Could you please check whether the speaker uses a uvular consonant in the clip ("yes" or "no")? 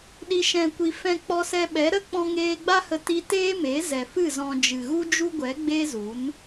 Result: no